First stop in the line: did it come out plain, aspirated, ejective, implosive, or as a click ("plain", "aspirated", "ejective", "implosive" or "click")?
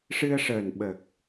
implosive